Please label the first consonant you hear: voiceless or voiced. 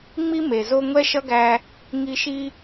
voiced